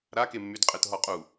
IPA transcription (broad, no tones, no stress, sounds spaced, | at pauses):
ɾ a k e mː y d qʼ e t ɦ ɔ qʼ u